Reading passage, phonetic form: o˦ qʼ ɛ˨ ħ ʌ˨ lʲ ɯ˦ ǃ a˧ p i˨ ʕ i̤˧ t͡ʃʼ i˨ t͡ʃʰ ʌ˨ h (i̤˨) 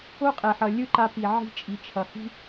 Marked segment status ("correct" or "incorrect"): incorrect